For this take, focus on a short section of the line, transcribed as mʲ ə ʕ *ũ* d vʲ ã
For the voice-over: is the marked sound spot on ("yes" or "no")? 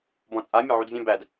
no